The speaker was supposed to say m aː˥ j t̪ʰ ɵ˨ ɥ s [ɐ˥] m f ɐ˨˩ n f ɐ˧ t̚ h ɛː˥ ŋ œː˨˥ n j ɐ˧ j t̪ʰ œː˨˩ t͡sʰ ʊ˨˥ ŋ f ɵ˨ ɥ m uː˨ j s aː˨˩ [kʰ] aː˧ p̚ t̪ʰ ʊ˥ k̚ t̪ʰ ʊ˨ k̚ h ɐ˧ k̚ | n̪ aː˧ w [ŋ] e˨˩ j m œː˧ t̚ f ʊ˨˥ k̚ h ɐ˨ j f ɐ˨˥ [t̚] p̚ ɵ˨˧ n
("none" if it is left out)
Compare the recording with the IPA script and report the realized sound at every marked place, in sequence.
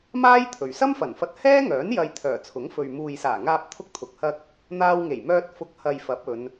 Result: ɐ˥, ŋ, ŋ, none

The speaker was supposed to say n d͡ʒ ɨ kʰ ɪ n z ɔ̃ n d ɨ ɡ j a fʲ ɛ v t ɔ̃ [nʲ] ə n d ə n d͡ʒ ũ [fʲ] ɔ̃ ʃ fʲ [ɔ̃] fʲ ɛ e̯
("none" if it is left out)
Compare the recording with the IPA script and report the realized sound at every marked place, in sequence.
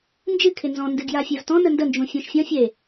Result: n, fʲ, ɔ̃

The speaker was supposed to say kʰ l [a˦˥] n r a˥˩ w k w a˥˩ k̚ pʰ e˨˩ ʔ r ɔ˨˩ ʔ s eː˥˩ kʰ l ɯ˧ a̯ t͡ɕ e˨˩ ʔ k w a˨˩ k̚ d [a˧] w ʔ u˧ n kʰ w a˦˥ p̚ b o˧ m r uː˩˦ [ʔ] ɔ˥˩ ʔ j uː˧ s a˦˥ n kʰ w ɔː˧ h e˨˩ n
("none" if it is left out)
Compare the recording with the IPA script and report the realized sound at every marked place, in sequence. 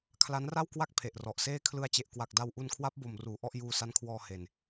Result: a˦˥, a˧, ʔ

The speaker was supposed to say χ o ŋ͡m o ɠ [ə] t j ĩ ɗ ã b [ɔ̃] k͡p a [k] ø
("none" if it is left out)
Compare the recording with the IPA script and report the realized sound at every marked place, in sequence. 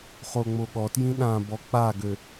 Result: ɔ, ɔ, ɡ

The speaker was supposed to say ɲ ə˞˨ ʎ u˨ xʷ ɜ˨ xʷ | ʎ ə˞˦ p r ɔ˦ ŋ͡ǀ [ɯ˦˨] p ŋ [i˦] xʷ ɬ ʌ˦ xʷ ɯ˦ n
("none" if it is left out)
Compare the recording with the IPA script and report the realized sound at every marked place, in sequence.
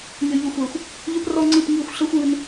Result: ɯ˦˨, i˦˨

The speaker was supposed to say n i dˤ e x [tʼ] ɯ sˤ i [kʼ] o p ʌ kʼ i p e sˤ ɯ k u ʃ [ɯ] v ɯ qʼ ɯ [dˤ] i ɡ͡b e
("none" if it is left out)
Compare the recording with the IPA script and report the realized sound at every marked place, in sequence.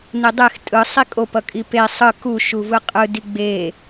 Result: tʼ, kʼ, u, d

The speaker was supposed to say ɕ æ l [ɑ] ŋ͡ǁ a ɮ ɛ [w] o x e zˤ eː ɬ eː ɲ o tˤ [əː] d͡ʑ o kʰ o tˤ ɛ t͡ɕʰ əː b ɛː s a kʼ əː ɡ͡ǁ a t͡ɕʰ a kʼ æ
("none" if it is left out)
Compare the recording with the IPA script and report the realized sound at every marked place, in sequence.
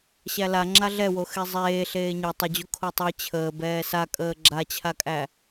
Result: a, w, ə

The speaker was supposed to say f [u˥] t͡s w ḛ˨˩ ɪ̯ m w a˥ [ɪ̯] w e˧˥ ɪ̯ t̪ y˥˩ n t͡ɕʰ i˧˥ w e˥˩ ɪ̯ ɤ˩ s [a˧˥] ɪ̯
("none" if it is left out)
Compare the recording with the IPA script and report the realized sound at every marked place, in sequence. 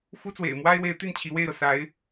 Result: u˥, ɪ̯, a˧˥

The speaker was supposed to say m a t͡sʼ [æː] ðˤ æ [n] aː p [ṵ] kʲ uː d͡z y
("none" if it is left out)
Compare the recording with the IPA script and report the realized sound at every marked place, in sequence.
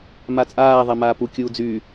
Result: aː, m, u

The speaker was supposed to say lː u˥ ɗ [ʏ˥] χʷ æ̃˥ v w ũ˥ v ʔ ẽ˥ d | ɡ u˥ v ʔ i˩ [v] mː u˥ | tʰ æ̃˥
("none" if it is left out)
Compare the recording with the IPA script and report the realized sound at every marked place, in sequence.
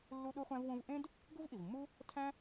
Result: u˥, v

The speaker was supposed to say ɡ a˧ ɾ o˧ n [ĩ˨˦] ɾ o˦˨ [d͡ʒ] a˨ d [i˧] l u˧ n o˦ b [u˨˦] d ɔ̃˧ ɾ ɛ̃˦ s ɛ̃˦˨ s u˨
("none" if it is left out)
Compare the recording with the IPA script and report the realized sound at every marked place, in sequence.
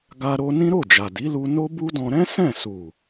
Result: ĩ˦, d͡ʒ, i˨˦, u˦

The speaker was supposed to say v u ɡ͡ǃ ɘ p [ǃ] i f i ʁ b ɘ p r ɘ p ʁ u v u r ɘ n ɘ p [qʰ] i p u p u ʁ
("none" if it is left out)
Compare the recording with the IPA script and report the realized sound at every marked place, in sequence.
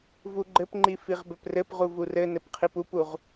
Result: ŋ͡ǃ, qʰ

